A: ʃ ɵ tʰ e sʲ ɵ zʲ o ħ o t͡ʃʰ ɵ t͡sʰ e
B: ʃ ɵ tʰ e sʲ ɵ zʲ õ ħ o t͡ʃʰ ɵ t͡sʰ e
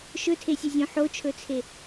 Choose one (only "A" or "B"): B